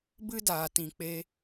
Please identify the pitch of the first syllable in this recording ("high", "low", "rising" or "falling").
high